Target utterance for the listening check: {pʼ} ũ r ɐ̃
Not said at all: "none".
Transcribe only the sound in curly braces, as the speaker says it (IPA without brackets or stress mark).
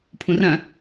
pʰ